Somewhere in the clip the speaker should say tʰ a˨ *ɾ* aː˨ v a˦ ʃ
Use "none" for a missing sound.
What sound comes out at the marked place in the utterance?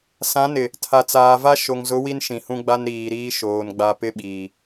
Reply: t͡s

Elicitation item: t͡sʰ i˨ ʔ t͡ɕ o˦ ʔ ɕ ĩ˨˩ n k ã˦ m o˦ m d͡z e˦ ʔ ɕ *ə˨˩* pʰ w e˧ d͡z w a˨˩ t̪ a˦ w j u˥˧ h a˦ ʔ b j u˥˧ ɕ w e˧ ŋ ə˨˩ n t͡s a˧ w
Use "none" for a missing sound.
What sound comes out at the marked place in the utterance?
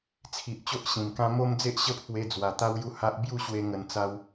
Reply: ə˦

